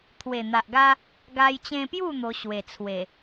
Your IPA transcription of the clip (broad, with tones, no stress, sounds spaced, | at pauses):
t̪ʰ w e˨˩ n̪ a˨ ʔ ɡ a˦ | ɡ a˧ j t͡ɕ ẽ˧ p j u˥˧ n̪ o˧ ɕ w e˨˩ t͡sʰ w e˨˩